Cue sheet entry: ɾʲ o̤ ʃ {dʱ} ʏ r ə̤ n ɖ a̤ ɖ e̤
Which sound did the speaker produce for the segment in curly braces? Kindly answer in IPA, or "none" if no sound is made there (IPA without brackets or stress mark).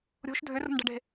dʱ